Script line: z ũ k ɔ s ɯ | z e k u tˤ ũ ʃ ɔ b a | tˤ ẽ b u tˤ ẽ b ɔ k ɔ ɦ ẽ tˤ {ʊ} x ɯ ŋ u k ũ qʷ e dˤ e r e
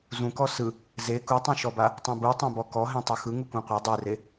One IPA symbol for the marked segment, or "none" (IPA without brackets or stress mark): ɯ